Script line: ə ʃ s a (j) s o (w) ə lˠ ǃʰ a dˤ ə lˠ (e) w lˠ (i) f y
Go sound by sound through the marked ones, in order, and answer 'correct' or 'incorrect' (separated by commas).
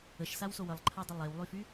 incorrect, correct, correct, incorrect